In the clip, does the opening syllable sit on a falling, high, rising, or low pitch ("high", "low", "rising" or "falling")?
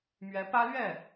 rising